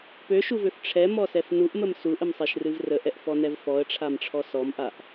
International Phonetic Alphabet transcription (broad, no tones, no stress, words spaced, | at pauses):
pøʃuvøf ʈ͡ʂʰɛmɔsɛf nuʔməm suʔəmsˤeʃrɨv rəʔɛʔfɔnɛv fɔə̯ʈ͡ʂʰamʈ͡ʂʰɔ sɔmʔaʔ